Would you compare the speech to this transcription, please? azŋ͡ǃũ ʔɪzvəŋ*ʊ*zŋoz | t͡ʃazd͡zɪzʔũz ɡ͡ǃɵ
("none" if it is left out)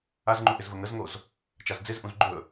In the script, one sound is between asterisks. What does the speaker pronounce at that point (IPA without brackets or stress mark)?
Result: ə